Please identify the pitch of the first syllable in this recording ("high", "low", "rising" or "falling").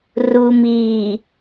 low